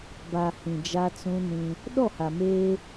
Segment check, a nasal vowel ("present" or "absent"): present